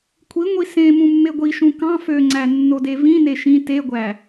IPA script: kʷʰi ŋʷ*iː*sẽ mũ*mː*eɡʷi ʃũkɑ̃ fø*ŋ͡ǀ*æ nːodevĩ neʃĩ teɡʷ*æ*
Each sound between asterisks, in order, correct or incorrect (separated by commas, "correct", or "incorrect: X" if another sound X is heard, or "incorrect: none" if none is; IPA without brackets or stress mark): incorrect: i, correct, correct, correct